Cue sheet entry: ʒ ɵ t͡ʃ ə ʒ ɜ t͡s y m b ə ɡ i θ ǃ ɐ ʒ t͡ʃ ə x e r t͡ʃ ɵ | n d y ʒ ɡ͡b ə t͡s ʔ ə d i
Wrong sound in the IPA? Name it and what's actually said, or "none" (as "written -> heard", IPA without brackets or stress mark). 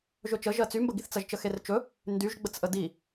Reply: ǃ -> t͡s